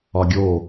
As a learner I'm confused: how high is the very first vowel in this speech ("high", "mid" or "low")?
low